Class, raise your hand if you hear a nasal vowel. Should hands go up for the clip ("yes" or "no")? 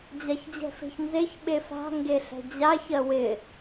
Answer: no